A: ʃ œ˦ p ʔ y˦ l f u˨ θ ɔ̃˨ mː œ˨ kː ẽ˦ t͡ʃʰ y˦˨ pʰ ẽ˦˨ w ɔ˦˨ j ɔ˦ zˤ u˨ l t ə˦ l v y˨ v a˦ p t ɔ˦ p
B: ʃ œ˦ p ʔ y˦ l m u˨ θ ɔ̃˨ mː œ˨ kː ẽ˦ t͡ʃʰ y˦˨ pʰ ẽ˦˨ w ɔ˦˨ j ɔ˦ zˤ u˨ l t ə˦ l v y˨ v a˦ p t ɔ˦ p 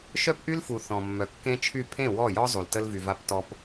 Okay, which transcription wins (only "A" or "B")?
A